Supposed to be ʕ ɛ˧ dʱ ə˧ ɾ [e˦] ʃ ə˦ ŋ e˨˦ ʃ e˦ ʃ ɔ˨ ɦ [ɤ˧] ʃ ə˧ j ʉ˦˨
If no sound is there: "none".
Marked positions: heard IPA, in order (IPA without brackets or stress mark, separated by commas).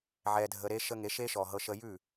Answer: e˦, ɤ˧